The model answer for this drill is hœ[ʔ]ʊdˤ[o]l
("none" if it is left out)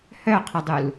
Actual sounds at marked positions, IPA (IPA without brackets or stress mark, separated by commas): qʰ, u